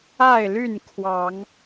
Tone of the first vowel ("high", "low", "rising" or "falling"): falling